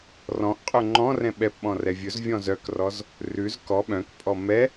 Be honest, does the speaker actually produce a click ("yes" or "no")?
yes